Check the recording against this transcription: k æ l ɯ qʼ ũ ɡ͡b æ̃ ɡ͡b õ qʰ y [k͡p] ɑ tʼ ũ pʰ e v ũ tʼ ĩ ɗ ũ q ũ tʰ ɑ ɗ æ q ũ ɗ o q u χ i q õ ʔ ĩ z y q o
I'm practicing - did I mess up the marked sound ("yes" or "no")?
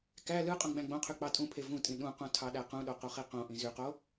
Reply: no